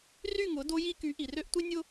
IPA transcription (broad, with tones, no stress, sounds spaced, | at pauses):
r y˦˨ ŋ ʊ˨˦ d o˦ j i˦ k y˨˦ ʔ i˨ r ø˦ ʔ tʷ i˦ nʲ ʊ˦